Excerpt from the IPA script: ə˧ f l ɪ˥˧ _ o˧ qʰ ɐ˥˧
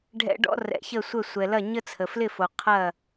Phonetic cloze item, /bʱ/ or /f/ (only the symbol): f